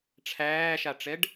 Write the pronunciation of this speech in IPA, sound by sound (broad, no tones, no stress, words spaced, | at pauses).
ʈ͡ʂʰæːʃaʈ͡ʂɛɖ